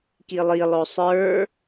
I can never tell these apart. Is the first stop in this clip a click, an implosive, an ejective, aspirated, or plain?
plain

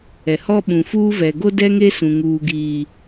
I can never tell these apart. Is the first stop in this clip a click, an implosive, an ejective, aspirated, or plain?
implosive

